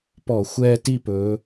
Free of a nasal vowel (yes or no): yes